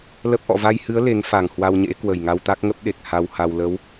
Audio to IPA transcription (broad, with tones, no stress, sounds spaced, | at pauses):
l ə˦˥ p̚ ʔ ɔ̰˧˨ v a˧ j h ɨ˨˦ ə̯ l e˨˦ ŋ f a˨˩ ŋ h w a˧ w ɲ ḛ˧˥ k w ə˨˩ j ŋ a˧ w t̪ a˦˥ k̚ ŋ ə˦˥ p̚ ɗ e˨˩ k̚ h a˧ w h a˧ w l ə˨˦ w